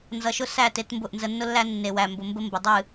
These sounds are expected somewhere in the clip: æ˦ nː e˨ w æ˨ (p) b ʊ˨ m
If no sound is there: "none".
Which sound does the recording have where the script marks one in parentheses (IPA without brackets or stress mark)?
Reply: m